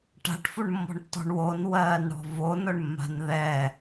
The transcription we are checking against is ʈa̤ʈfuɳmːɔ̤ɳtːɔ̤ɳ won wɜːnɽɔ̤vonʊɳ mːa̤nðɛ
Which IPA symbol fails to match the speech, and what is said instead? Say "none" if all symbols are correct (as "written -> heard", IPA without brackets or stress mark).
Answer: none